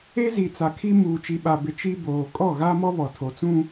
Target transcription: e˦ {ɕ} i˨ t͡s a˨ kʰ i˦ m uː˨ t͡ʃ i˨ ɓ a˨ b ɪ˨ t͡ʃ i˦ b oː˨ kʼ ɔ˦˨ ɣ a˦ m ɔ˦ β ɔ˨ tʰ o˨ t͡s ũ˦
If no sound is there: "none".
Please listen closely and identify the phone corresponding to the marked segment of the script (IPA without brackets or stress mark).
z